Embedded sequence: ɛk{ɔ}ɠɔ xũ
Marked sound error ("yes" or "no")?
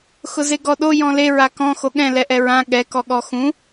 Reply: no